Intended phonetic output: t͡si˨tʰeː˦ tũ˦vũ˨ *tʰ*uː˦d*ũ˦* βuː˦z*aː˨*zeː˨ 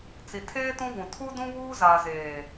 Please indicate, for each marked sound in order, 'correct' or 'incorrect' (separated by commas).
correct, correct, correct